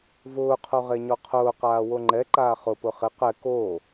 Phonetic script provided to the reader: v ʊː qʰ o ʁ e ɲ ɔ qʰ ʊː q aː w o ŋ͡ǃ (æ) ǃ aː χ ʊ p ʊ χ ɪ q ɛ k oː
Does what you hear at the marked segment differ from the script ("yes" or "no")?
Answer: yes